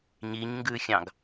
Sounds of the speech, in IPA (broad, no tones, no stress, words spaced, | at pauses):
ɲiɲŋɡʉxʲɑ̃ɡ